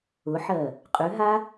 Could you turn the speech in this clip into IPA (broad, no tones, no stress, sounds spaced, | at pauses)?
ʊ ħ ɜ | qʼ ʉ ɦ a